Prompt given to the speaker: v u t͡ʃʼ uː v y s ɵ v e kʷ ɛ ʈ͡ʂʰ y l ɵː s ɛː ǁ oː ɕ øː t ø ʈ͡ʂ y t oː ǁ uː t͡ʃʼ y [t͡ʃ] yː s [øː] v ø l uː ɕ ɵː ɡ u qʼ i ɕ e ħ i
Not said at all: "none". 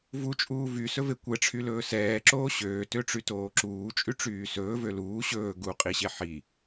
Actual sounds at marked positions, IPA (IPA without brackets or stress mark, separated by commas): ʈ͡ʂ, ɵː